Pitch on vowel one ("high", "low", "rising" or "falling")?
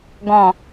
low